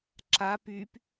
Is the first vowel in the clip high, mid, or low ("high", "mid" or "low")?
low